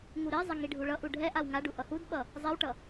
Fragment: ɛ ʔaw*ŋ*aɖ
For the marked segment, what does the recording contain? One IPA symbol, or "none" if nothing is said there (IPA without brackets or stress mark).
ŋ